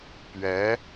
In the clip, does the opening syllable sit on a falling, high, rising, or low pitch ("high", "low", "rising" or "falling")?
rising